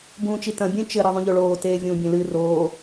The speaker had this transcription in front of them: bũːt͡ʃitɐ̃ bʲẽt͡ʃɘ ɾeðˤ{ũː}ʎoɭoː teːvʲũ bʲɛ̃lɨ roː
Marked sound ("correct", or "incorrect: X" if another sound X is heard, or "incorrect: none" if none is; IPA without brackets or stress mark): incorrect: ũ